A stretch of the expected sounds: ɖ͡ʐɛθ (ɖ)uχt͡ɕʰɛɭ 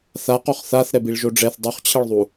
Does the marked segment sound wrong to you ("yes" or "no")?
yes